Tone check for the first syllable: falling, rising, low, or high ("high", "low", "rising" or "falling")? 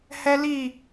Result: high